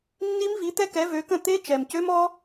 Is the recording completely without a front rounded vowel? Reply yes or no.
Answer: no